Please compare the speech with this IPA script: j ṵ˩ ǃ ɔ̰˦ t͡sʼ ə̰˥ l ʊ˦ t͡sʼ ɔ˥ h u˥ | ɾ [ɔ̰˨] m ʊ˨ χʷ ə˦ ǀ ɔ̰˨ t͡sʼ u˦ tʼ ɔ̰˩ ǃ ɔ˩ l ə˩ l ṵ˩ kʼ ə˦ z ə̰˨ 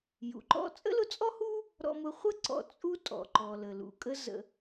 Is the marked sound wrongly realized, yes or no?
no